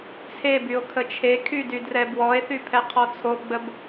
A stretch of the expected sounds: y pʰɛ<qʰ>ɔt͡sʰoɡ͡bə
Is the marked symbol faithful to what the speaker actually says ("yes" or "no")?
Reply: yes